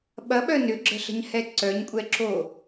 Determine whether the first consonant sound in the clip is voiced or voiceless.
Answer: voiced